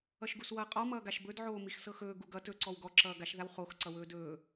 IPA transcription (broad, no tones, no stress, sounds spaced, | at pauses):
ʌ ʃ ɡ u s w ʌː qʼ ɔ m ʌː ɡ a ʃ b ɵ d ʕ oː m i x s ɤ x ɵː ɡ u ɡ ʌ t ɵ ǀ ɔ w ɡ ɔ ǁ ʌː ɡ a ʃ ð a w χ o x ǀ ʌ w ɵː d ɵː